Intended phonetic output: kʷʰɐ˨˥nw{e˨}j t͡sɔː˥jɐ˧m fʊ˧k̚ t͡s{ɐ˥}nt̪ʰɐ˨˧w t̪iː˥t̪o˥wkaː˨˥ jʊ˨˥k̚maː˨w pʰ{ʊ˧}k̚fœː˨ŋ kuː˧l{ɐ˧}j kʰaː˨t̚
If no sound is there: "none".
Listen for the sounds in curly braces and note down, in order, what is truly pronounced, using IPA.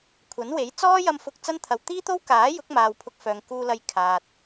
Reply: e˨˥, ɐ˥, ʊ˧, ɐ˧

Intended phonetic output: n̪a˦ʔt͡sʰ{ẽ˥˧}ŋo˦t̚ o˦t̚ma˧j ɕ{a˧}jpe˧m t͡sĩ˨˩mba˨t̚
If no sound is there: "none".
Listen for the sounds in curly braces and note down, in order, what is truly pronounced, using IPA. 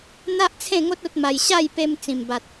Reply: ẽ˥˧, a˥˧

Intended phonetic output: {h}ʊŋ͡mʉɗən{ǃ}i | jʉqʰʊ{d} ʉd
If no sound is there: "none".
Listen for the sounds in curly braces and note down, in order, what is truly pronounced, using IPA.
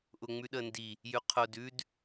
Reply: ʔ, d, d

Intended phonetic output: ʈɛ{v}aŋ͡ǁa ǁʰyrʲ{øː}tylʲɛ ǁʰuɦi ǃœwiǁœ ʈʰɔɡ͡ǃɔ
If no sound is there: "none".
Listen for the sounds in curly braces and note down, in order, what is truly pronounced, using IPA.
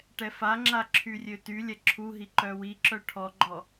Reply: f, ø

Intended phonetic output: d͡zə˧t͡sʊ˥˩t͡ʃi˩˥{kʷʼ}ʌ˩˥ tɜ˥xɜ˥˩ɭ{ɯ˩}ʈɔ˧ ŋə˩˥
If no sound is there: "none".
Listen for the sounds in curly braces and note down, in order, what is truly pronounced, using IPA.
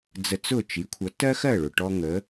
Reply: kʷʰ, ʊ˩

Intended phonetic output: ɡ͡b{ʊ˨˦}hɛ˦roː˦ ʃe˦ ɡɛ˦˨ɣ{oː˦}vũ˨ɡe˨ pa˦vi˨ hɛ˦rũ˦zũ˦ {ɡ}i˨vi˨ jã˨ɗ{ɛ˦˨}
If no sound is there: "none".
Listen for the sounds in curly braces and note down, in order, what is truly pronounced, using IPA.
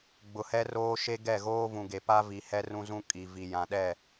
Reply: ʊ˨, oː˦, kʼ, ɛ˦˨

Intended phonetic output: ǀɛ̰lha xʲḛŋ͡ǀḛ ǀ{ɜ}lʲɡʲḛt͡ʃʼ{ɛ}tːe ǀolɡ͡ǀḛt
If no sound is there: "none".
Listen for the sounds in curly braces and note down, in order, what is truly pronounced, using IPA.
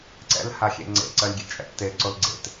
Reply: ɜ, ɛ̰

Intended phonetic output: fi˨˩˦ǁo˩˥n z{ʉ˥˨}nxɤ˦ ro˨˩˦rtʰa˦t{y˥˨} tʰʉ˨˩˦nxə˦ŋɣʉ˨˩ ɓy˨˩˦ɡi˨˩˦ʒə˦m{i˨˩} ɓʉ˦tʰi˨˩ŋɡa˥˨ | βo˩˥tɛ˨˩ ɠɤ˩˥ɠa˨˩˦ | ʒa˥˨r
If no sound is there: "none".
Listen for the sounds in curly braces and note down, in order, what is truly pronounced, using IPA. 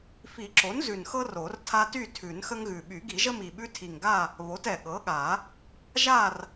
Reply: ʉ˨˩, y˥˨, i˨˩

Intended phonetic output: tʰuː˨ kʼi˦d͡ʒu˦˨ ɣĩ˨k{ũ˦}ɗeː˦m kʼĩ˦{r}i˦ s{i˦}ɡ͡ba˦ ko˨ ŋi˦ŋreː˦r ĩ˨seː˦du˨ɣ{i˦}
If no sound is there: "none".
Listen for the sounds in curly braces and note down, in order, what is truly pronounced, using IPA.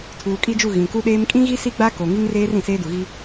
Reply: u˦, ɣ, i˦, i˦

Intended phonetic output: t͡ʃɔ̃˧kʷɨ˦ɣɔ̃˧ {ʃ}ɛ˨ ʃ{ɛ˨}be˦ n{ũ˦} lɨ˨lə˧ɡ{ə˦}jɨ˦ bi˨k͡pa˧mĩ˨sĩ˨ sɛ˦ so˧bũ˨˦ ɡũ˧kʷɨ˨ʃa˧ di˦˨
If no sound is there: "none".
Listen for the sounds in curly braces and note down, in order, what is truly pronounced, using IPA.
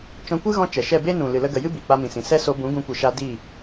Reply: t͡ʃ, ɛ˦˨, ũ˨, ə˨

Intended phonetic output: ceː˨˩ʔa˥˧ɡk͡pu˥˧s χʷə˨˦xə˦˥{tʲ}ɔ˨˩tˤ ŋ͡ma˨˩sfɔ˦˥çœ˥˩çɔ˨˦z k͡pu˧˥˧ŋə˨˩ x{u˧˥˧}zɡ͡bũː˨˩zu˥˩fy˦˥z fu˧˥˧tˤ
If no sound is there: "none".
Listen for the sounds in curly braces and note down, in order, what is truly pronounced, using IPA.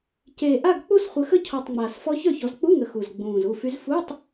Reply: cʰ, u˨˩

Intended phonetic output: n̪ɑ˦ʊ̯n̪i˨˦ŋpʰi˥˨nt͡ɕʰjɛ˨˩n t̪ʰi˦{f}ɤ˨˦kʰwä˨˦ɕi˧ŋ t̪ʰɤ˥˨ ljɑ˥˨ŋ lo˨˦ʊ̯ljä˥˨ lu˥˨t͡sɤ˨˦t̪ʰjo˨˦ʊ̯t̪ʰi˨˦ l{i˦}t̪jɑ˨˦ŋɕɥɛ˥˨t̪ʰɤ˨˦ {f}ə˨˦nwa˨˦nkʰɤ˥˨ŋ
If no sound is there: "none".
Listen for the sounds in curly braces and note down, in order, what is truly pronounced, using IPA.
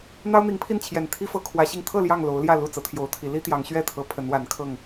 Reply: f, i˦, pʰ

